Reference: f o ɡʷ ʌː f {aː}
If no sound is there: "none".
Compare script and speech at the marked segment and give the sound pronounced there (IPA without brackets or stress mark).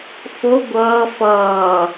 ʌː